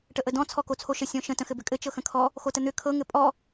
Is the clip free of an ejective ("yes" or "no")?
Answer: no